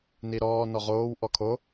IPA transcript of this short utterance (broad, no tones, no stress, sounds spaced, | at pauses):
n i ɾ ɔː n ɔ ʁ oː w ʔ ɔ kʰ o